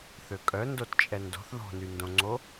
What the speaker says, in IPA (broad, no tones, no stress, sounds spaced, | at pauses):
θ ø kʼ œ n d o t t͡ʃʼ ɛ n d o̤ θ ð o̤ n y n d õ ŋ͡ǀ o